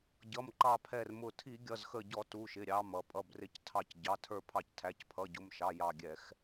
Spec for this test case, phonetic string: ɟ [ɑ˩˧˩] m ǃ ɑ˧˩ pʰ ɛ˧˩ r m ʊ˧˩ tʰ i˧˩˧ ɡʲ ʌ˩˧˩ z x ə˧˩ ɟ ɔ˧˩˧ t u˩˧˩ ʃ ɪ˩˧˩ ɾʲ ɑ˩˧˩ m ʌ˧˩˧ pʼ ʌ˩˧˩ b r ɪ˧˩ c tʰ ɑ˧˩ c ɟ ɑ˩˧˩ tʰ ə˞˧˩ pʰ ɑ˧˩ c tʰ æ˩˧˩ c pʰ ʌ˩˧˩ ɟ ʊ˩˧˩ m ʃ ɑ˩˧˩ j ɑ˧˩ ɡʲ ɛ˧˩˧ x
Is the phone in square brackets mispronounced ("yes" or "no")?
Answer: yes